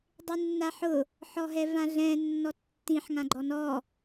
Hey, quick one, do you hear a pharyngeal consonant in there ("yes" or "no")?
yes